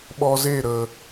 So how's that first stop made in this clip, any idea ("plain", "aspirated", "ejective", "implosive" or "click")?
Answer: implosive